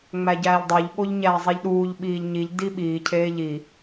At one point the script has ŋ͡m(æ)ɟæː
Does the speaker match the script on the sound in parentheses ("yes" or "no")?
yes